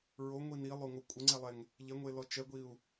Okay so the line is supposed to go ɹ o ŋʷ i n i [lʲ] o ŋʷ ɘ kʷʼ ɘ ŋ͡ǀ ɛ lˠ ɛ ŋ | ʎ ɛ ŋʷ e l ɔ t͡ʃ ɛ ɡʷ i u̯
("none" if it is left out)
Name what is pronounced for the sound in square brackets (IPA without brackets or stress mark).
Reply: lˠ